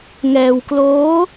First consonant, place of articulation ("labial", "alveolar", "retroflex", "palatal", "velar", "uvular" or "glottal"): velar